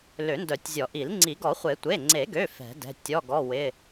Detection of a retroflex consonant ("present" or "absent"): absent